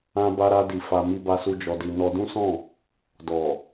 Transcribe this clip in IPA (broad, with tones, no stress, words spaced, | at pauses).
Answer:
ã˧ba˧ ɾa˧di˨ fa˧ mi˧ba˧su˧ d͡ʒɔ˧di˧ nɔ˧dũ˦sɔ̃˦˨ | dɔ˨